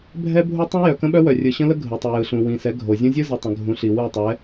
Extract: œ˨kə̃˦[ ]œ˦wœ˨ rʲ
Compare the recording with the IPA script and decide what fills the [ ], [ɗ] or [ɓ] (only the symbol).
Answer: ɓ